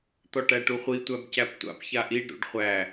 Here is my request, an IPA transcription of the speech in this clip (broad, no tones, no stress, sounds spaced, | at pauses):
t̪ ɔ ʈ æ ʈ u χʷ i tʷ æ b c æ p tʷ a̰ p ç a ʔ i ɖ ɾ ṵ ɖ χʷ æ